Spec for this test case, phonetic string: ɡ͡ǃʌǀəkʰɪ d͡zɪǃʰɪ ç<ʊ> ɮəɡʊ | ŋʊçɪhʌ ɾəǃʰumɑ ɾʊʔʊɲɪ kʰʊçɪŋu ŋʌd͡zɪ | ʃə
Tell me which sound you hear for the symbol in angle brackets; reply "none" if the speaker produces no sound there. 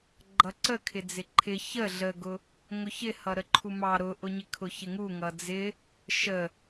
ə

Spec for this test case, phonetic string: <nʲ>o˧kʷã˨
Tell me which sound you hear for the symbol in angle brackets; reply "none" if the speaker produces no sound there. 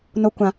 n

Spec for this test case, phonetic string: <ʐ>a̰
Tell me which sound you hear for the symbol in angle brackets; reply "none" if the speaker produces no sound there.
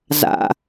z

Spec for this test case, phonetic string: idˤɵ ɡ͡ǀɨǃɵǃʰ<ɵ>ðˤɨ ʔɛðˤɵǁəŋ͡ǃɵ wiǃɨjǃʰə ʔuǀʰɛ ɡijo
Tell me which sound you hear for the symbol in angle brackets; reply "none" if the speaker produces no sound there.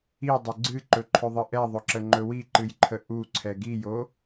ɵ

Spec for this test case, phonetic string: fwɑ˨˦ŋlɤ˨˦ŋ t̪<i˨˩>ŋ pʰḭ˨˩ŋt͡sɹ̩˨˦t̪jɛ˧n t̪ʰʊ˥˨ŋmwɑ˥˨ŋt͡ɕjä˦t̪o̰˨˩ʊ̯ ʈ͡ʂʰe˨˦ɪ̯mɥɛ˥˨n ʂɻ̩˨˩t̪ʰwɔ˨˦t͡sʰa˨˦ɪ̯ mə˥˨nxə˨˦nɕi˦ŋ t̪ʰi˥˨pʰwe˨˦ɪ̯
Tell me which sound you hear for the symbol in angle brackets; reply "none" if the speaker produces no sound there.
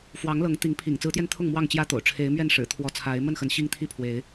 i˨˦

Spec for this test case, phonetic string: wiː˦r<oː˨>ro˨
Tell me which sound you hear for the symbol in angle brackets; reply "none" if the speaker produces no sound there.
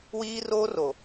oː˦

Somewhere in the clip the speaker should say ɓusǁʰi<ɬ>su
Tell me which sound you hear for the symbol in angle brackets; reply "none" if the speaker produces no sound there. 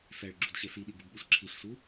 ɬ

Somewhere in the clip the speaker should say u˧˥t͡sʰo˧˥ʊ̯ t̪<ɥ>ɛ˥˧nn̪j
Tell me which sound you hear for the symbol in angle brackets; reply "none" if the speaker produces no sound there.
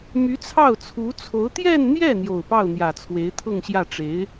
j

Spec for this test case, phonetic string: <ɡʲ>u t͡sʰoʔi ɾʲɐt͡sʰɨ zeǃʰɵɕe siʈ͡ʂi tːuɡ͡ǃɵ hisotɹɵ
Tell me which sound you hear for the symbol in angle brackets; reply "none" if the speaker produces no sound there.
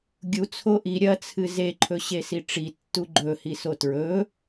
ɡʲ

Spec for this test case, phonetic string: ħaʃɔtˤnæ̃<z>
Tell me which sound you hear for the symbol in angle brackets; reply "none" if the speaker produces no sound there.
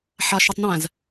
z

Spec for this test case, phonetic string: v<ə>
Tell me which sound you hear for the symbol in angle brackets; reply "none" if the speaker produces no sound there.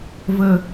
ə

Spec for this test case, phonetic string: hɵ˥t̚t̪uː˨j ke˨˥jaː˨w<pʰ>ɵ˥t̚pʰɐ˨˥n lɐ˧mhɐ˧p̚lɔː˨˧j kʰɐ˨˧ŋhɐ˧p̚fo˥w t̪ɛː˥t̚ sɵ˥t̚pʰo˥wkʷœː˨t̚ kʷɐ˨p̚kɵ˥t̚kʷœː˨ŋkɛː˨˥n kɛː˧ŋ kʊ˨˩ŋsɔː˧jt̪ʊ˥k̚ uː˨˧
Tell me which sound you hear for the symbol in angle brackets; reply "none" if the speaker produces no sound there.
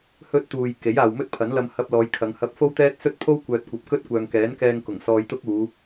m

